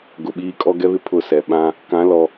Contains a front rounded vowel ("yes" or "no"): no